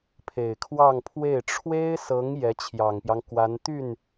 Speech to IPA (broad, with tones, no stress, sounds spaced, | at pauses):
pʰ e˨˩ ɪ̯ kʰ w ɑ˥˧ ŋ pʰ w e˥˩ ɪ̯ ʈ͡ʂʰ w e˥ ɪ̯ s ɤ˧˥ ŋ j ɛ˧˥ t͡ɕʰ j ɑ˨˩ ŋ p j ɑ˦ ŋ k w a˧˥ n t̪ y˥˩ n